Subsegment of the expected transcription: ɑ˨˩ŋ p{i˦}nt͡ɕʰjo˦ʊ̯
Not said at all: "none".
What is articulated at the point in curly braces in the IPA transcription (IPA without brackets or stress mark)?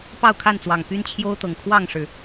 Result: y˦